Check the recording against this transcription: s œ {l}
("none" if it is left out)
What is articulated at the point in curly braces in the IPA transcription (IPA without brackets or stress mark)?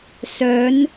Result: n